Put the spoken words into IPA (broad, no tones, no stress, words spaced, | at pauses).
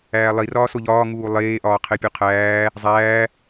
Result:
æːlˠirɒː soʎɒː ŋuːlˠeːʔɒː qʰepʲuqʰæː | zˤæː